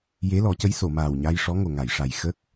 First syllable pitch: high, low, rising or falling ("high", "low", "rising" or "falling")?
rising